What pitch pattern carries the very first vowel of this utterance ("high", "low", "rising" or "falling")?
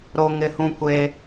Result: high